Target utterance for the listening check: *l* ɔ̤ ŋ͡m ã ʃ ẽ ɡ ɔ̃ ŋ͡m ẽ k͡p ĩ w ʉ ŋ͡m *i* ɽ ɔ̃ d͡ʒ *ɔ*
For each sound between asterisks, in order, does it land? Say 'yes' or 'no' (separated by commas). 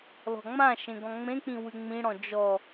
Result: yes, no, yes